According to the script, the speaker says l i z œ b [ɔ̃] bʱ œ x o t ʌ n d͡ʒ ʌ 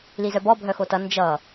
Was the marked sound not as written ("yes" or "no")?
yes